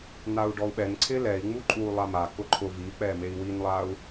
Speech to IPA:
n̪au̯ɖɔu̯ɓɛnǀʰɪ lɛi̯ ŋ͡muǃʼu lˠama kʊǃʰʊ vik͡pɛmei̯ winlˠau̯

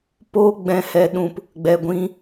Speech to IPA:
poː˦ɡ͡bɛ̃˧hɛ˧ɗũ˧p | ɡ͡bɛ˨ɡʷĩ˧

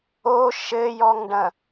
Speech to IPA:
o ʃɘjɔŋɖɐ̃

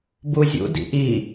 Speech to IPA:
buzʲṵ dḭʔi

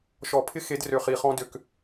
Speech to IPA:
ʃɔ˨˩˦pʰɪ˦xe˨˦drø˨˩ χi˨˩χɔ̃˦ dø˨˩k

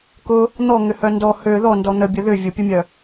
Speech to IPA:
kʊ | n̪ɔŋʏhœ ndɔ hø ðɔndɔ n̪əbʲə ðʏ vʲʊpʲʊmʲœ

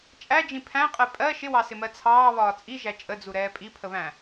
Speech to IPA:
t͡ʃʼæd͡ʒĩ pʰæ̃qʼɛ pʼɜ ʃɪwɑsɪmɜ t͡sʰɑːβɒː t͡sʼiʒæ t͡ʃʼəd͡zuɾɛː pʼipʰəβæ̃

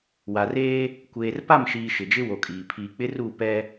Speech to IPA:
wa˨reː˦ | kʷeː˨rpa˦˨mʃiː˨ ʃɪ˨d͡ʒɪ˦wo˨kʼiː˨ pʰiː˨k͡pɪ˦ ru˦˨ pɛ˦

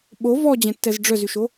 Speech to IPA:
ɓo vɔd͡ʑɛ̃tːɛz ɖ͡ʐœzyʃo

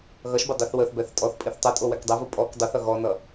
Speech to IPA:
ɣʌʃbə dˤiθwəθbɛθ tʼɔθpʼiθ tˤə tʼowɛkdˤɛvu pʼɔk dˤuθʌ ɣɔnʌ

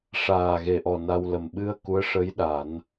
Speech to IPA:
ʂaː˨˩ɣe˨˩ʔɔ˨˩ na˧wlə˨˩m ɓɨ˧ə̯ ku˧˥ə̯ʂə˧˥j ɗa˨˩˦n

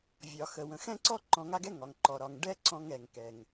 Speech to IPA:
vʲɒ˩xə˩wə̃˩ xɛ̃˥ǀɔ˥ ǃɔ̃˧ŋa˥ɡɛ˥ ŋɒ˩ŋ ǃɔ˩ɾɒ˩ŋ ɖɛ˥ǀɔ̃˧ŋ ɛ˩ŋkɛ˩ŋ

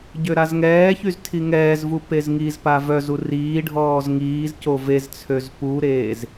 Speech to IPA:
ɟøɾazŋɛːçyz tʰiŋɛːzvu pezŋizpa vœzu riːɖʱɔːz ŋiːzco vezt͡sʰøz puɾeːz

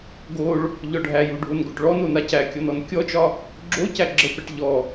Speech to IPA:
ɡoɭ | ʎɔɖʱæju ɖʱonɡoʈɭɔno nacækʲɔn ɔnkʲɔt͡ʃɒ | ɡ͡ǁo cæɡ͡ǁəpɛʈ ʎɔ

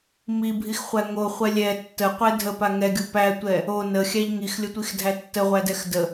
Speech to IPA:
mibʱixχʷæ ŋoχʷɛ lʲɛ tːəqʷɛ dʱəpa ŋɛɡʲo pætʷɛ | o nəxʲæʎ ŋixlʲətʷixdʱæ tːəʁʷædɛx də

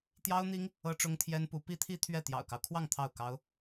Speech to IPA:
t̪jɑ˥ʊ̯n̪i˥ŋ | ɤ˥ʈ͡ʂʊ˥ŋt̪ʰjɛ˥npu˧˥ pi˥t̪ʰi˥ t̪ʰɥɛ˥˩ t̪jɑ̰˨˩ʊ̯kɑ˦ʊ̯kʰwɑ˥˧ŋ t̪ʰɑ˥˩ʊ̯kɑ˥ʊ̯

